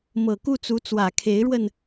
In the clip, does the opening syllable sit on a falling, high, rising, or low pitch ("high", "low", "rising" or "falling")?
low